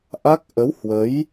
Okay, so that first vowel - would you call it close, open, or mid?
open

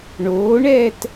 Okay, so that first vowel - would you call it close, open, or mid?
mid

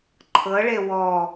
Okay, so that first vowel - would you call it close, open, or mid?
mid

